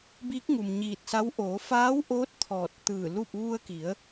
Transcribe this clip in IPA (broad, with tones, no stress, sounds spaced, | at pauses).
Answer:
b iː˧˥ k̚ ŋ u˩ m ɲ iː˧˩ t̚ s a˧˥ w ʔ oː˩˧ f aː˧˥ w ʔ oː˧˥ t̚ t̪ʰ ɔː˧˩ t̚ t̪ ɯː˧˩ l u˥˨ p̚ ʋ u˧ ə̯ k i˩˧ ə̯